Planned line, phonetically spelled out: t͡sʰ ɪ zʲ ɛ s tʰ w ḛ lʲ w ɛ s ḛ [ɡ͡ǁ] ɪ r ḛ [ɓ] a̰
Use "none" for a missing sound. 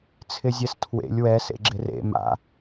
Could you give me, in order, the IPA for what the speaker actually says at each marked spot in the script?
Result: ɡ͡ǁ, m

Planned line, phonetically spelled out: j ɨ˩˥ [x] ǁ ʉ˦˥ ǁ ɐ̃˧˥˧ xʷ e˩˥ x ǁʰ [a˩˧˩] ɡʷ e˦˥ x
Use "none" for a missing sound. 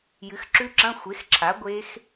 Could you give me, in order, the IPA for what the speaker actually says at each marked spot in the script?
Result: x, a˩˥

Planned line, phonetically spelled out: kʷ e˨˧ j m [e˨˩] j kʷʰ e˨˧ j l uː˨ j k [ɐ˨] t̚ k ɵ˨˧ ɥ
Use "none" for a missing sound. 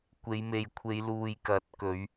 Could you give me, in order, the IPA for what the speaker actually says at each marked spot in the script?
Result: e˨, ɐ˨˥

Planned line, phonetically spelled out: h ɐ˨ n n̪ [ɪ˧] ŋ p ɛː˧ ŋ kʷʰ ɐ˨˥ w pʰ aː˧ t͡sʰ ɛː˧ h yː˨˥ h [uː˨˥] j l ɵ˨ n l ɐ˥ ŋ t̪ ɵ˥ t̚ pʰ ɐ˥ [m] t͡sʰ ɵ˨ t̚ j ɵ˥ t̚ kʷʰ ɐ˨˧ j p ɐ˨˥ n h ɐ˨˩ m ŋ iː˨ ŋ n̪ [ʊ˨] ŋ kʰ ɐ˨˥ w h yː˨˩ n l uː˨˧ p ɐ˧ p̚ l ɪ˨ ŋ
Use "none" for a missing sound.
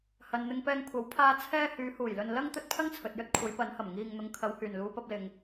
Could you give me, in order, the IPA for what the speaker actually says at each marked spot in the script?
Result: ɪ˧, uː˨˩, ŋ, ʊ˨

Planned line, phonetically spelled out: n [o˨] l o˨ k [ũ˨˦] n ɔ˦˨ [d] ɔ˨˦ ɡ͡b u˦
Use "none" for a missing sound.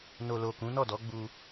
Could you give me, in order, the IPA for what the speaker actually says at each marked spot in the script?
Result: o˨, ũ˨˦, d

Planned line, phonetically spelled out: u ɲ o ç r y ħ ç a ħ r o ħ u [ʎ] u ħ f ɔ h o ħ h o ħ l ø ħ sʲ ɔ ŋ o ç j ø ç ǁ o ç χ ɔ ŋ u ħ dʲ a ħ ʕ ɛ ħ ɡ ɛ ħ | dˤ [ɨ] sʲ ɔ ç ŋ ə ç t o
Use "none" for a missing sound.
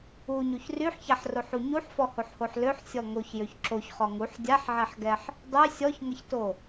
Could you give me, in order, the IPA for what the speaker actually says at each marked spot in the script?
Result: ɲ, y

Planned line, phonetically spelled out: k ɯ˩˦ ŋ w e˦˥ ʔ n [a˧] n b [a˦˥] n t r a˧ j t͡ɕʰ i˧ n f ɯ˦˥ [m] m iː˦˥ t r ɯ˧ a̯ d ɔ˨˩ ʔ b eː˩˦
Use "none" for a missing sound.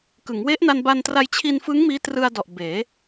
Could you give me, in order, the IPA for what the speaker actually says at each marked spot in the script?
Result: a˧, a˧, ŋ

